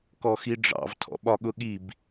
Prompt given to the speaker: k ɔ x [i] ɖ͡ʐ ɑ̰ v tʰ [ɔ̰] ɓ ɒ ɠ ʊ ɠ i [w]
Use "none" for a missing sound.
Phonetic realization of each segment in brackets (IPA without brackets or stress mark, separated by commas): i, ɔ̰, b